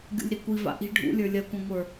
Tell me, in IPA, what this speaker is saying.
ɡʲ ṵ lʲ ɾ i kʷ i v a̰ ʔ i̤ ɖʱ ṵ lʲ ə˞ lʲ ɐ kʷ ɐ̃ ŋʷ ə˞

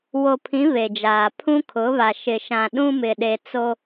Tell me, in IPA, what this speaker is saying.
w o˨ pʰ ĩ˨˦ β e˨ d͡ʒ aː˨ pʰ ũ˦ kʰ ʊ˨˦ β a˨ ʃ ɪ˨ ʃ ã˨ ɗ ũ˦ m ɪ˨ ɗ e˨ t͡s o˦

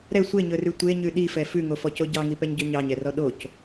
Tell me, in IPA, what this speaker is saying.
ɾ ɛ sʷ e ɲ ɵ r ʉ tʷ e ɲ ʉ ɗ i f ɛ f ʉ ŋ o f ɔ c o ɟ ɑ ŋ i p ɛ ɲ ɟ ø ɲ ɑ ɲ ɛ r ɔ ɗ o c

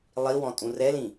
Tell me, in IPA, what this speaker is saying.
lˠ i w ɔ̃ tʼ ũ r ɛ l ĩ

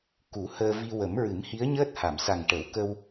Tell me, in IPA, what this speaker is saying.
k u˨˩˦ h əː˧ v i˧ w ə˨˩˦ m ɹ ɨ˨˩˦ m h i˧˥ ə̯ ɲ əː˦˥ t̚ h a˨˩˨ m s a˨˩ ŋ ʈ ə˨˩˦ w k ə˧ w

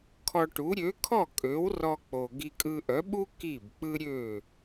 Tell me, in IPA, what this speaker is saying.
kʰ ɔ˧ ʈ u˩˥ ɾʲ ø˩˥ kʰ ɔ˥˩ kʼ ø˩˥ w r ɔ˧ k͡p o˩ ɡ i˧ kʼ ɯ˧ ʔ œ˩˥ ɓ u˥ k i˥˩ b k͡p ɯ˥ ɾʲ ø˥˩

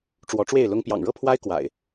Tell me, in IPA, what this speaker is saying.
ʈ͡ʂ w ɔ˨˦ ʈ͡ʂ w e˥˨ ɪ̯ l ʊ˦ ŋ p j ɑ̰˨˩ ŋ ɻ ɤ˥˨ pʰ w a˦ ɪ̯ k w a̰˨˩ ɪ̯

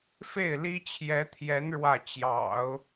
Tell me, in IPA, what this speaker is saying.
f e˥˩ ɪ̯ l i˥ t͡ɕʰ j ɛ˧˥ t̪ʰ j ɛ˧˥ n ɻ w ä˥˩ t͡ɕ j ɑ̰˨˩˦ ʊ̯

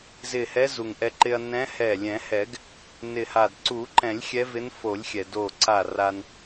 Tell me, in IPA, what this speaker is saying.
z ɪ˧˩ h ɛ˧˥ z u˩ ŋ ʔ ɛ˧ ǃ ɪ˧ ɐ̯ n ɛ̃˧˥ h ɛ˧˩ lʲ ɛ̃˨˩˦ h ɛ˨˩˦ ɡ | n ɪ˧˩ h a˧˩ d ǀ u˨˩˦ ǃ ɛ̃˨˩˦ lʲ xʲ ɛ˧˥ v ɪ˧˥ n f o˨˩˦ lʲ xʲ ɛ˩ d o˧˩ ǀ a˧˩ r a˧ n

